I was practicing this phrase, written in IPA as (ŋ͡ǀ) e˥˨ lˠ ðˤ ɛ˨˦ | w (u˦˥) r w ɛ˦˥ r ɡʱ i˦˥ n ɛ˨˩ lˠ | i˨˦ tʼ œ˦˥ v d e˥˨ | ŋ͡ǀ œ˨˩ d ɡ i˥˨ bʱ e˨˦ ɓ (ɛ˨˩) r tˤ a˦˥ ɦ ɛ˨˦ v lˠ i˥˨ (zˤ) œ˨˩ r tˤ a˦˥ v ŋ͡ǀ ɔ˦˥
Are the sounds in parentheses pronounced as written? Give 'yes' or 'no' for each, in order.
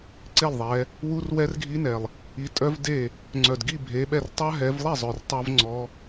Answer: no, yes, no, yes

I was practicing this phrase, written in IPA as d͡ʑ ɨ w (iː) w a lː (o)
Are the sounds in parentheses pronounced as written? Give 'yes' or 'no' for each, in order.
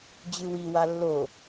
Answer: no, yes

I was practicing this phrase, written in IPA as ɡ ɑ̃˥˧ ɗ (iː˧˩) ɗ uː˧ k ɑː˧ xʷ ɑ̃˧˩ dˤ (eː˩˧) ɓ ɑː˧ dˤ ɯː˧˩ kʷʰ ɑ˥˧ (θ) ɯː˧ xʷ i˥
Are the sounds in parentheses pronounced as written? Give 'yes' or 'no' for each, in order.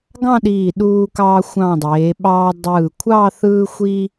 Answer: yes, yes, yes

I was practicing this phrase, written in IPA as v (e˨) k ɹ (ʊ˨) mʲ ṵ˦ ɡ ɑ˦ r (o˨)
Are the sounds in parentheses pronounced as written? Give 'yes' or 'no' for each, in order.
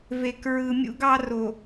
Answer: yes, no, yes

